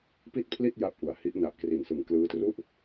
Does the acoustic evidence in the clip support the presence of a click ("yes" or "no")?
no